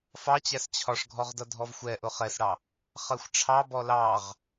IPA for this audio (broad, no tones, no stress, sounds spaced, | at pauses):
f ɑ t͡ɕ æ s t͡ɕʰ ɒ ʂ ɡʱ ɔ ʁ d ʌ dʱ ɔ v xʷ ɛ ʔ ʊ χ ɛ s ɽ ɑ | χ ɜ xʷ ʈ͡ʂʰ ɑ b ɔ l ɑ ʁ